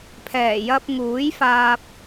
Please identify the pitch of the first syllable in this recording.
low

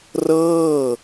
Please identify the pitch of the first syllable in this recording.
falling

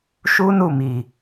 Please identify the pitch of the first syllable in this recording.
high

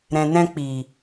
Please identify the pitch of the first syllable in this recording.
low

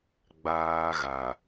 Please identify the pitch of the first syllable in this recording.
high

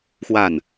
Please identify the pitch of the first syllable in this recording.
falling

